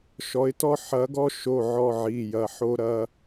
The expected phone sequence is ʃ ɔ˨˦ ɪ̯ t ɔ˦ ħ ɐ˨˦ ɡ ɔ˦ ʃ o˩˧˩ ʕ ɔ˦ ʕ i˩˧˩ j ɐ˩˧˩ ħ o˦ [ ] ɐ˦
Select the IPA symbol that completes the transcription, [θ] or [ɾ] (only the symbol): ɾ